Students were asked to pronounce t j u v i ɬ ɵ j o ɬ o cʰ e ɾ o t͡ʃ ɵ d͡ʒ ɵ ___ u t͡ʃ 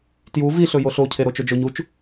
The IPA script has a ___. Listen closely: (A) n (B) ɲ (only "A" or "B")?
B